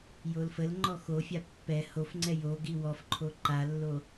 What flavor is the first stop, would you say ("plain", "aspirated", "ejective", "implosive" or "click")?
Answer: click